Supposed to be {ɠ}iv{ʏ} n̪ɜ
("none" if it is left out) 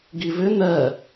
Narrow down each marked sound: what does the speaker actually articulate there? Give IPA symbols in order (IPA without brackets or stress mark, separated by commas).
ɡ, ʏ